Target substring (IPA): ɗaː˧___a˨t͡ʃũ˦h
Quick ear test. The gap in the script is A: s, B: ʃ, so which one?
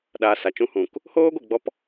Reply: A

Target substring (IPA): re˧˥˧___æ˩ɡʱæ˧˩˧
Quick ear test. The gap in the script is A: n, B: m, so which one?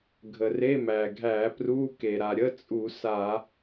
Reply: B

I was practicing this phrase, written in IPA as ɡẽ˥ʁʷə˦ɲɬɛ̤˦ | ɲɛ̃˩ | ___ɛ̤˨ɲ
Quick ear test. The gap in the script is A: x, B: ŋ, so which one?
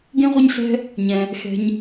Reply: A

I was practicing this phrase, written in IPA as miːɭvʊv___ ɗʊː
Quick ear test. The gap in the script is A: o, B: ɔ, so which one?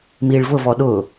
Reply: B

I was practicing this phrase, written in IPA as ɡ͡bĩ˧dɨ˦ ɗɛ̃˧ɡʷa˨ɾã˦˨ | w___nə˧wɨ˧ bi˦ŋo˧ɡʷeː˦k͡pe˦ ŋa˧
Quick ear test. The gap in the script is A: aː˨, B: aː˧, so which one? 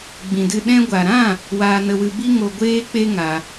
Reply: B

